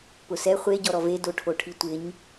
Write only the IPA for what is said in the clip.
pʊsɛ χʷe ɟɔɾɔve doʈʰoʈʰitʷɪɲ

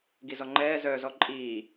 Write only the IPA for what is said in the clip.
ɡizɔŋ͡ǃɛː zœːzɔǃʼiː

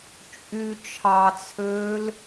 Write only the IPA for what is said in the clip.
t͡ʃʼy t͡ʃʰɑt͡sʰøːl

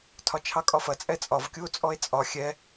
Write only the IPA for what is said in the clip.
tʰɒt͡ʃʰɑkʼɒfɐ t͡sʼɛt͡sʼɒv kʲuo̯t͡sʼɔe̯t͡sʼɒ xʲɛ

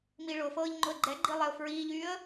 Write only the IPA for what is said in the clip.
miɭʊfɤːʎ ŋ͡ǃʊə̯ɡ͡ǃɛɡ͡ǃi lˠɛʊ̯fɹiːʎyːə̯

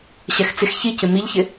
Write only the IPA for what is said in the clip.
ɕɛxt͡sɪx çicɪ miʎçɪ

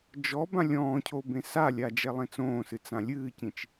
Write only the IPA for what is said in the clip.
d͡ʒɔbã lʲɔ̃ːcʰo bẽsalʲa d͡ʒɛlˠẽt͡sõːsɨ t͡sãlʲɨːcĩt͡ʃ

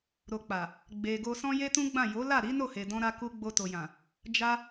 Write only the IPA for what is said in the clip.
ɾo˨k͡pa˨ | ɡ͡be˨ɡo˧sɔ̃˦ je˦tũ˦ɡ͡bã˦˨ jo˨˦la˦˨ɾi˨˦ no˦˨he˨ dɔ̃˧ɾa˧ku˧ ɡ͡bo˧to˨jã˨ | d͡ʒa˦

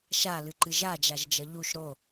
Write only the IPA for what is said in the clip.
ʃalɨǃɨ ʒad͡ʒaʒd͡ʒʌ ʎuʃ ɾo

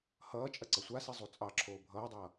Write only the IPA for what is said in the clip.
hʌː t͡ʃʼɐǀʌsʷasi zˤut͡sʼɑǁʰoː bʱʌːdˤʌː

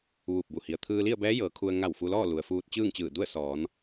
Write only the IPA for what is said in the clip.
ʋuː˧˩p̚bu˧˩ hi˩ə̯ t̪ʰɯː˧li˥˨ə̯bɛː˧˥ jɤː˩˧kʰu˧ə̯ ŋa˧˩w fu˧lɔː˥˨ lu˩ə̯fuː˧t̚ t͡ɕɯː˥˨ŋt͡ɕɯː˧˩ du˥˨ə̯sɔː˩˧n

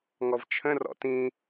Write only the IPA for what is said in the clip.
ŋɔvt͡ʃʰə̃ rɔ̰tĩ

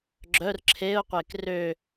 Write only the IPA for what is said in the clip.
ɡ͡ǁœr ǁʰeʊ̯qʷek rø

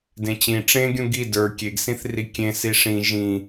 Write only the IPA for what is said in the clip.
dẽt͡ɕĩ ʈ͡ʂẽɡʲũ ɡi də˞ kʲeɡsĩθri kʲẽ siʂĩ ʒĩ

